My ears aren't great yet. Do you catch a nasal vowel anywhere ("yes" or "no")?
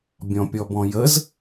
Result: yes